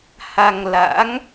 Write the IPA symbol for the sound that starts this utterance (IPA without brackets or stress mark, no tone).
h